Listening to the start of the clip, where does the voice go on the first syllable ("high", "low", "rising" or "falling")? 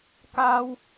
high